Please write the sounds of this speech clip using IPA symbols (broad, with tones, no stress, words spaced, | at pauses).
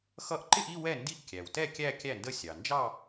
xʌ˥˩ʔ ǃɪ˥˧ʔi˥˧ wɛ˥˩ndi˥˩ʔ kʲæ˩wtɛ˥˩ kʲæ˥˧kʲæ˥˩ndə˥˩ sʲɑ˩nd͡ʒɑ˥˧